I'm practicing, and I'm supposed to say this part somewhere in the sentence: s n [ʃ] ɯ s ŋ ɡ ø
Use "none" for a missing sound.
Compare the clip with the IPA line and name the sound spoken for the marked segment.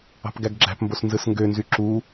z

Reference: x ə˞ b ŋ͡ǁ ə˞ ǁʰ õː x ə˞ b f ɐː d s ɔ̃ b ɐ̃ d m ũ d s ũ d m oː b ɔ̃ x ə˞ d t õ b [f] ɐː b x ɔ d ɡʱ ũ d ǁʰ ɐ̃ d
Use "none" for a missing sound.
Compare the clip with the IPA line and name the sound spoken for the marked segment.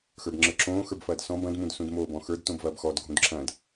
v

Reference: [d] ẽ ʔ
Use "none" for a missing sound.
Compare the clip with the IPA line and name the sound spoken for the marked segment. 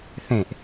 θ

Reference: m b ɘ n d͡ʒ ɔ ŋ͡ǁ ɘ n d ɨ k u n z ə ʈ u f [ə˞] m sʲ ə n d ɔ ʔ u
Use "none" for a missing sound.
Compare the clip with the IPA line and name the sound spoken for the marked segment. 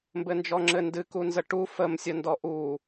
ə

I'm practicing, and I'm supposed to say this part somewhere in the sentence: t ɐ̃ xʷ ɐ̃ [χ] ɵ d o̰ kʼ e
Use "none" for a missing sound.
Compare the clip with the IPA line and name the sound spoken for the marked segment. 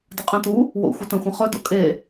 χ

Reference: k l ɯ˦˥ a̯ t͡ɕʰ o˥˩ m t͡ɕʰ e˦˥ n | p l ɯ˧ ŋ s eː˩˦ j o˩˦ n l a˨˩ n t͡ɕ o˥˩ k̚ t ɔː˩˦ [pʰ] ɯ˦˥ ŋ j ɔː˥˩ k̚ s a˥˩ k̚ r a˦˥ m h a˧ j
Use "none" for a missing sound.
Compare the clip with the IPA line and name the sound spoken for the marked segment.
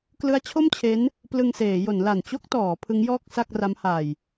pʰ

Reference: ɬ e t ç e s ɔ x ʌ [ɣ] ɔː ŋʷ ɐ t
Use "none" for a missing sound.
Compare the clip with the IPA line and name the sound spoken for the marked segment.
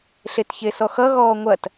ɣ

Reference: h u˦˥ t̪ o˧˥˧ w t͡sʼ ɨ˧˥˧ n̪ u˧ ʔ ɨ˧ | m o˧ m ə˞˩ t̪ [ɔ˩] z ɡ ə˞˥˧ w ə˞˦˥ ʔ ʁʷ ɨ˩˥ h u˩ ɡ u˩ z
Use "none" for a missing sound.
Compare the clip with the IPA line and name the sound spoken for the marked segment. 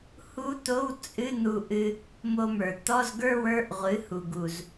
ɔ˧˥˧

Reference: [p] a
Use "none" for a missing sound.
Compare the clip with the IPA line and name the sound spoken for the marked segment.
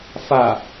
f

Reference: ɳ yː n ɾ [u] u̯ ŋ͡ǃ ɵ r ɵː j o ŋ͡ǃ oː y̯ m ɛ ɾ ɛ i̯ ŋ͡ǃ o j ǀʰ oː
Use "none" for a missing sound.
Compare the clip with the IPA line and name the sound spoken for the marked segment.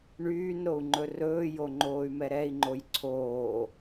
o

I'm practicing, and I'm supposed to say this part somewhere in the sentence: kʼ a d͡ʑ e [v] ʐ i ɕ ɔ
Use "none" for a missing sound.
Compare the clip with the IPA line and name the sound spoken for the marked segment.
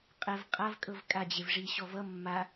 v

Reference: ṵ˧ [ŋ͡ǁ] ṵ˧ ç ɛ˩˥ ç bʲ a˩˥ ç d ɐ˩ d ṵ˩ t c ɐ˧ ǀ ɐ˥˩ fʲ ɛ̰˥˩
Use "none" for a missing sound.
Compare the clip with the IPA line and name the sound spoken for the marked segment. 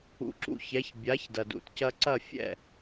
ǁ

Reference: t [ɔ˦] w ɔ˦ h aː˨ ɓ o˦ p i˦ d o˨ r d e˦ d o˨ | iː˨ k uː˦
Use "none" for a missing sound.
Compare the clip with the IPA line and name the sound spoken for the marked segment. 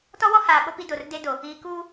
ɔ˦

